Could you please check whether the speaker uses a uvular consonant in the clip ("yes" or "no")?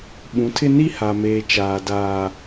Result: no